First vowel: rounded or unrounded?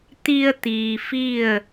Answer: unrounded